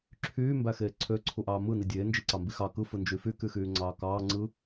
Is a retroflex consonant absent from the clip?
yes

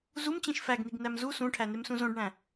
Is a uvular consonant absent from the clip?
yes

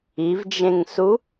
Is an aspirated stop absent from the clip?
yes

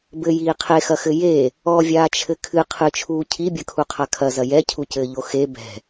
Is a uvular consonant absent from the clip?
no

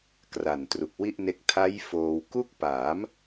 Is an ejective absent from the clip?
yes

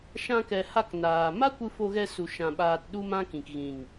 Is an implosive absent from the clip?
no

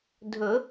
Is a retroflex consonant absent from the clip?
yes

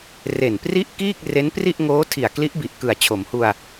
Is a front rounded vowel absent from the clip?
yes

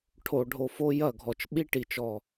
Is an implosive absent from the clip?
no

